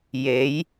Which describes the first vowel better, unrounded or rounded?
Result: unrounded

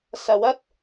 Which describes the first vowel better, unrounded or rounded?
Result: unrounded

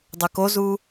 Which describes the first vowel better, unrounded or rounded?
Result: rounded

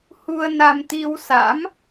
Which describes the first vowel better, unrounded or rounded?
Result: rounded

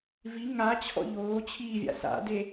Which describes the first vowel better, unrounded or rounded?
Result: unrounded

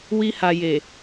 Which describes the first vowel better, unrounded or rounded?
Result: unrounded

